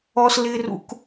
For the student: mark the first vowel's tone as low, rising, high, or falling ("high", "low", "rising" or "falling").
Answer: high